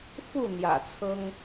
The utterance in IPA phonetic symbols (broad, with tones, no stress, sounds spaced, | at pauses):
f u˥˩ n̪ j ä̰˨˩ t͡sʰ ɤ˥ ŋ